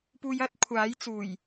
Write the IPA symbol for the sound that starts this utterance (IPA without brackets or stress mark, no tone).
p